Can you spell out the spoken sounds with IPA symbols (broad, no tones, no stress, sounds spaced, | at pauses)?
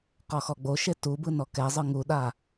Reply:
q ɔ x ɔ ɡ͡b o ʃ e t u b ɯ n ɔ k ɛ zˤ ɯ ŋ u ɗ a